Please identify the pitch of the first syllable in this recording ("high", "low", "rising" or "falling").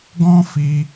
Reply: high